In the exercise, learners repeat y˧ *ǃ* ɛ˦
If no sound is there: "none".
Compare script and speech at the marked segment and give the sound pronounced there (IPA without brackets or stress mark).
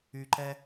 ǃ